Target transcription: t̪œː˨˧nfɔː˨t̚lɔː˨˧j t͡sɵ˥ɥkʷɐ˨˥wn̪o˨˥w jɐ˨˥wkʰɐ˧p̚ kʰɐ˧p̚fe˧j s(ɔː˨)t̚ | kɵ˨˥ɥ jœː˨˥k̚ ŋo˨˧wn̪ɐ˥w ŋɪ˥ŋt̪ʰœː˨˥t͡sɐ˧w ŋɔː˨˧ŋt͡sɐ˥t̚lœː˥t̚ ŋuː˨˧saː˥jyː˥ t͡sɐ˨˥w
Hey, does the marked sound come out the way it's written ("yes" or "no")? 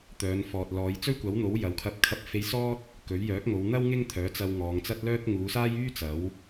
no